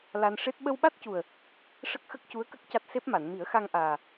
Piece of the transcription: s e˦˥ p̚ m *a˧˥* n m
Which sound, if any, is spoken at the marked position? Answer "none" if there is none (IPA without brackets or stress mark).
a˨˩˨